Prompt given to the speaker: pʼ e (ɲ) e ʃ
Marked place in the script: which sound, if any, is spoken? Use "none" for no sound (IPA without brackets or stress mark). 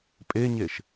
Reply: ɲ